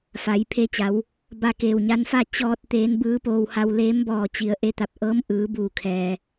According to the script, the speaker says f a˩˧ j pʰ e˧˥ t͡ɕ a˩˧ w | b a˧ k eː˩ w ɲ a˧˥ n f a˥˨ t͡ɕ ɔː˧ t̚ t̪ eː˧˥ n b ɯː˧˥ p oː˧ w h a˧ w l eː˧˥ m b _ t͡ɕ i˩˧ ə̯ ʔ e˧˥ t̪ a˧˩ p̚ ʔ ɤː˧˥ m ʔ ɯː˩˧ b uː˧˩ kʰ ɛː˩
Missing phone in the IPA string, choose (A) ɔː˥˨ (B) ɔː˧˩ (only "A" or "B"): B